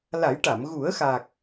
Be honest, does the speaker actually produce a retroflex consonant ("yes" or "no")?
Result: yes